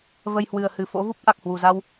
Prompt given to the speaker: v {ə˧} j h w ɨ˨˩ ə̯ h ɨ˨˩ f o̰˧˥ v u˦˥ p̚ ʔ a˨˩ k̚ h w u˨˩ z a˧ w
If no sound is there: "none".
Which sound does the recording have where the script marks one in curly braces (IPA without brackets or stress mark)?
ə˧